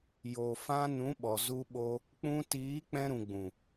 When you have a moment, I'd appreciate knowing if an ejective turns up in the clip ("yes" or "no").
no